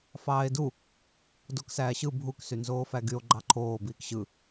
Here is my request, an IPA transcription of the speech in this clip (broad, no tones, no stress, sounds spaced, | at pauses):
f ɑː e̯ d u | d o k s æː ɕ ɯ bʱ u k s y n z oː f æ ɡ y o̯ ɡ͡ǃ ɑ ǃʰ oː b iː k ɕ ɯ